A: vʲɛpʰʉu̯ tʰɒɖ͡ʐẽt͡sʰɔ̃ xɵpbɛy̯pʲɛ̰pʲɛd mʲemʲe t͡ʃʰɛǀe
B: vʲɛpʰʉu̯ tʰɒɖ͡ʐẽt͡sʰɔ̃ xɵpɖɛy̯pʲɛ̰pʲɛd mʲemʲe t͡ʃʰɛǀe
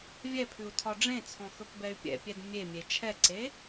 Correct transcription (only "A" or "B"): A